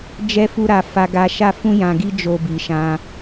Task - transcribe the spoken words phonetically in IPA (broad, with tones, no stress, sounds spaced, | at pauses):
d͡ʒ ɛ˦ f u˦ ɾ a˧ f a˧ ɡ a˧ ʃ a˦ f ũ˦ j ã˧ ɡ i˦ d͡ʒ o˦ b i˧ ʃ ã˦